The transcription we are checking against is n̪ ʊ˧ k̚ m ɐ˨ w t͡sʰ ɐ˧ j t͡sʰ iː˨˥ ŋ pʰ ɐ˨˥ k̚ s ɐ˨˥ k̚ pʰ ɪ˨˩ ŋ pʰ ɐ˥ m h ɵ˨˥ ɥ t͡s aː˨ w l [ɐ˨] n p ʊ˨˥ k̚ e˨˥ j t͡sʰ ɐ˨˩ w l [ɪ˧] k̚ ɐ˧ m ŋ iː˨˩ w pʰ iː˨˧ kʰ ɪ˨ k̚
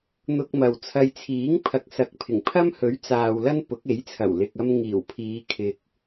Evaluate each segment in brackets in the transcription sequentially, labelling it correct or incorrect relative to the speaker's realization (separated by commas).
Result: incorrect, incorrect